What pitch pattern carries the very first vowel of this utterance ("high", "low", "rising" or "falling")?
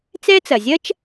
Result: high